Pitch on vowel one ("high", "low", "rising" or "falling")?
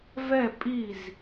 falling